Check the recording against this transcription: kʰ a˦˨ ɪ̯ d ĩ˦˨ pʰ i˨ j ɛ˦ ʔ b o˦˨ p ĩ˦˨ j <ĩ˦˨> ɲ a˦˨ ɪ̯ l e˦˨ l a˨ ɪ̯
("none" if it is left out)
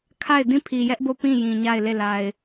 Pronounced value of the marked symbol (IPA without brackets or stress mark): ĩ˨